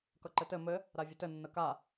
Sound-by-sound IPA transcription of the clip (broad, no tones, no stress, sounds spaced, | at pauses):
k ʌ ǃ ɘ t ɘ m ɘ | ɾ a vʲ ə t ɘ nː ə k a